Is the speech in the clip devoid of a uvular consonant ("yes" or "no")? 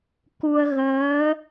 yes